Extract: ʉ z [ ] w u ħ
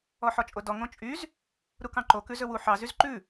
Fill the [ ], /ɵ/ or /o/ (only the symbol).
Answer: ɵ